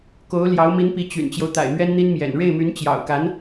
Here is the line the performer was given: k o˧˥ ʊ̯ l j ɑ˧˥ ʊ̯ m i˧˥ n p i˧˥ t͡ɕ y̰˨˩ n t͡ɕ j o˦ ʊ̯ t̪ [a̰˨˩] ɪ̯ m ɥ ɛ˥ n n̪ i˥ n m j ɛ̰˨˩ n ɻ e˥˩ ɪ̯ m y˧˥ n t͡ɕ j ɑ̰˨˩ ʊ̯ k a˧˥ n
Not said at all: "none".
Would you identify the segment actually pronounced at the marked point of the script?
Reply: a̰˨˩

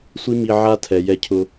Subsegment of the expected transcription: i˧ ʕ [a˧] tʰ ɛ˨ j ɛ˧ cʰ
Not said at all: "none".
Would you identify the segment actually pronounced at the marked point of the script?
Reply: a˧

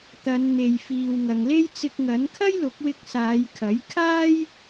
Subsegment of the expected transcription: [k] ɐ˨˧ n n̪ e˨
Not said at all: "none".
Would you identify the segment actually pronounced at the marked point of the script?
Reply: t̪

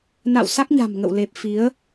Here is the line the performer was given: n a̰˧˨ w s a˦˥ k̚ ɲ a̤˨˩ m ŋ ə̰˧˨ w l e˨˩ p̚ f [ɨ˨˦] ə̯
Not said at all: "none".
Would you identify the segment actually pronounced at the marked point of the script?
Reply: i˨˦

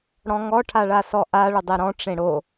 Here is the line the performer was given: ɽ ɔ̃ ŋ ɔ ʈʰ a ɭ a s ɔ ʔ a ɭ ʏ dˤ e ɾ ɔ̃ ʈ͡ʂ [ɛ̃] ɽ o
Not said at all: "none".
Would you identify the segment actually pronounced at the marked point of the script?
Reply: ẽ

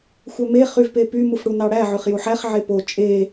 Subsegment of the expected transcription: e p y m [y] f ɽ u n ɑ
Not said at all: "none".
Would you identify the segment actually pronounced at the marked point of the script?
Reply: u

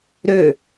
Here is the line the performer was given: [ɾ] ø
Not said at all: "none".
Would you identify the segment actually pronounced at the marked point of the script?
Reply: ɾ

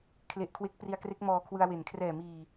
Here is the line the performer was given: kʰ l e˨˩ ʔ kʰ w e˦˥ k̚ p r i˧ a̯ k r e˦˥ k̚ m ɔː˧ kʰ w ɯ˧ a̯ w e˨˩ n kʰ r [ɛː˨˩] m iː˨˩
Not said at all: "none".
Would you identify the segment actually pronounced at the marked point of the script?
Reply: ɛː˨˩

